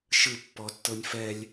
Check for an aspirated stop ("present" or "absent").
absent